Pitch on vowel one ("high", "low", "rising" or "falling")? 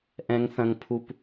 high